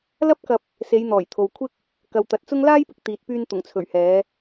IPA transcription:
l ɐ˥ p̚ k ɐ˧ p̚ | s e˨˧ j n̪ ɔː˨˩ j t̪ʰ o˨ w kʷʰ ɪ˥ k̚ | k ɐ˨ w t̪ ɐ˨ t̚ t͡s ʊ˥ ŋ l aː˥ j p ɪ˧ k̚ t̪ iː˨ t̚ p yː˧ n t̪ ʊ˨˩ ŋ t͡sʰ ɵ˨˩ ɥ h ɛː˨˧

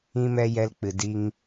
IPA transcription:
ĩ˦ m ɛ˦ j ɛ˧ l k͡p ɨ˨ d i˧ ŋ

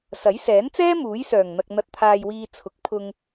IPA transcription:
s ɐ˨˥ j s ɛː˨˥ n t͡s ɛː˥ m uː˨˥ j s œː˨˩ ŋ n̪ ɐ˨ k̚ n̪ ɐ˨ t̚ t̪ʰ aː˨ j w iː˨ t͡sʰ ʊ˨˥ k̚ pʰ ʊ˧ ŋ

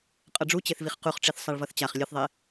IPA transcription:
qʼ ʌ ɖ͡ʐ u t͡ɕ e θ v i χ q u χ ʈ͡ʂ i θ sˤ a ɭ v ʌ θ t͡ɕ a χ lʲ ɯ θ ðˤ e

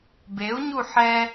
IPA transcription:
b e u̯ ɲ u ħ ɛ

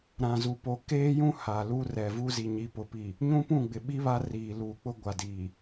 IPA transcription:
ɾ ã˨ z u˨ p o˨ k eː˦ j ũ˦ h a˨ l uː˦ r ɛ˨ v u˦ z i˨ ɲ i˨ p ʊ˨ p i˨ | ɲ ũ˦ p ũ˦˨ ɡ͡b ɪ˨ ɓ i˦ β a˦ r iː˨ l uː˨ k͡p ʊ˦ ɡʷ a˨ d iː˨

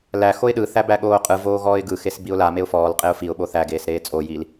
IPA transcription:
l æ x o ɪ̯ ɗ ɯ θ æ b æ ɠ oː qʼ ɯ v oː ɣ ɔː ɪ̯ ɡ ɯ x e s b i ʊ̯ l a m e ʊ̯ f ɔː l qʼ e ʊ̯ f i ʊ̯ ɓ o θ æ ɡ eː s ɾ eː t͡sʼ o j i l

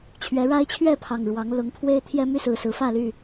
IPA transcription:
t͡ɕʰ ɥ ɛ˨˦ ɻ a˦ ɪ̯ t͡ɕʰ ɥ ɛ˥˨ pʰ ɑ˨˩ ŋ ɻ w ɑ˨˦ ŋ l ʊ˨˦ ŋ pʰ w e˦ ɪ̯ t̪ʰ j ɛ˦ m y˥˨ s ɹ̩˨˩ s ɹ̩˨˦ f ä˥˨ l y˥˨

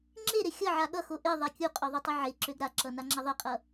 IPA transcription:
ŋ͡ǁ e ɾ e xʲ ʌ ʕ a ɠ ʌ x o ʔ e ðˤ a kʲ u qʼ ø ðˤ o tˤ ʌ ʕ e ǁ ø ɡ ɾ a ǁ ʌ n a ŋ͡ǁ ɐ ðˤ e qʼ ʌ

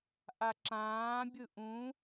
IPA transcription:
ʔ a ǁ ãː bʲ ɯ ʔ ũ

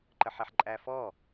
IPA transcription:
ǃ ə ħ ɛ ħ ǃʼ æ f ɔ

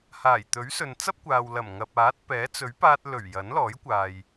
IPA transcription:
h aː˨˩ j t̪ ɵ˨˥ ɥ s ɵ˨ n t͡s ɐ˥ p̚ kʷ aː˨ w l ɐ˨˩ m ŋ ɐ˨ p̚ aː˨˥ t̚ p ɛː˨˥ t͡s ɵ˨˥ ɥ p aː˧ t̚ l ɵ˨˩ ɥ j ɐ˨˥ n l ɔː˨˥ j kʷ aː˨ j

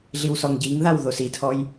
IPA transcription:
ɮ i w s ɔ ŋ ɟ i ŋ ð a w ð o s i tʰ ɔ j

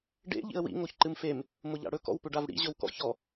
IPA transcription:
ɖ ḛ ʎ ḭ ə̯ w ḭ ŋ o ç ǃ ɨ m f e m | m ʊ ʎ a̰ ɽ ɵ k ɔ̰ w p ʏ ɖ a v ɽ ḭ ʑ ɵ w k ɔ̰ ç ɔ

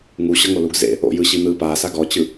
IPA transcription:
ŋ u ɕ ɤ ŋ o l u ɡ z ḛ | o̰ j ɯ ɕ i n̪ ɯ p aː s a ɡ ɔ t͡ɕ ɯ

